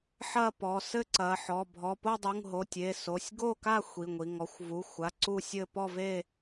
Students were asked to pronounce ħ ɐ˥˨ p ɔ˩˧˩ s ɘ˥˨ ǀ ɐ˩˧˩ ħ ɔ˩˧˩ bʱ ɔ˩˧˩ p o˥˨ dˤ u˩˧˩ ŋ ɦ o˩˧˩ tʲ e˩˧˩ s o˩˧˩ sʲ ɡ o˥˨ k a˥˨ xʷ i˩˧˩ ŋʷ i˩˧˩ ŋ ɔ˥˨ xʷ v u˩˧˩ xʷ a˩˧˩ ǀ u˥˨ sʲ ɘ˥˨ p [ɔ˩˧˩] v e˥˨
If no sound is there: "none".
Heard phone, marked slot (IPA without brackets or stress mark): ɔ˥˨